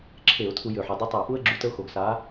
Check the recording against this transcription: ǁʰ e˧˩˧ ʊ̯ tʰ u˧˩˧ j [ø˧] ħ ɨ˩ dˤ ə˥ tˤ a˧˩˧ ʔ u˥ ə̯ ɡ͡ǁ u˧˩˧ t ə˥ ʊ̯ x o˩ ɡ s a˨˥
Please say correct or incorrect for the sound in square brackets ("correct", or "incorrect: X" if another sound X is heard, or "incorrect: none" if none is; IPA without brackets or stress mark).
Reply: incorrect: ø˩